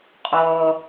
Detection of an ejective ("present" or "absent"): present